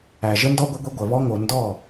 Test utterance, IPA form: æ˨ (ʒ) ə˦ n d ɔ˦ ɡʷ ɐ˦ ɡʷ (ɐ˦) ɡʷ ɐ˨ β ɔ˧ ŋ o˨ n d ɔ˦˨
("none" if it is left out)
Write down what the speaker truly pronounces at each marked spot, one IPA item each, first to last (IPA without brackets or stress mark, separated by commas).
ʒ, ɐ˦